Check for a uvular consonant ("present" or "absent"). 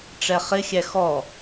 present